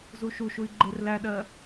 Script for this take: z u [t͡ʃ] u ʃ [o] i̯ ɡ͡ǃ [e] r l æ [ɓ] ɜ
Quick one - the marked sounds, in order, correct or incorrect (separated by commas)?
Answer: incorrect, incorrect, correct, incorrect